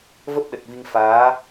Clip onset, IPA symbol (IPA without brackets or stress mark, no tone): v